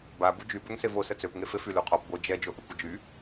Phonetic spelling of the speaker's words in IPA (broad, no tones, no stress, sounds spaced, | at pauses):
b a b u d͡ʒ y b ø ŋ s e v o s ə t͡s ø p ŋ e f e f y l u qʰ ɔ p ɡʷ œ d͡ʒ ɛ d͡ʒ o ʔ ø kʷ ə d͡ʒ y